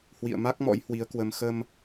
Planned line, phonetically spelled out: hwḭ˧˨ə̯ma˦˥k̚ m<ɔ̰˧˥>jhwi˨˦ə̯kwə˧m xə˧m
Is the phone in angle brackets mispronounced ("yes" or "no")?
no